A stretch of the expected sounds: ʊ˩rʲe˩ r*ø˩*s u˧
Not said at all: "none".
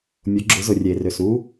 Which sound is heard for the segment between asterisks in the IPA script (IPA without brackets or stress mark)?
ø˩